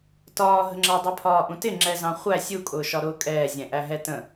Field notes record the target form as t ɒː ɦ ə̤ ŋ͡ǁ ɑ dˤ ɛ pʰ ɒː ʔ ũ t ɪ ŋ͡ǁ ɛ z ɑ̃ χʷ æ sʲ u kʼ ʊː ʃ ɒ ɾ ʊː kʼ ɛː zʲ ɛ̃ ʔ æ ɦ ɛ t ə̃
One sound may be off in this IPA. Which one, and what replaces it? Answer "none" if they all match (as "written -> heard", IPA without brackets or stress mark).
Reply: none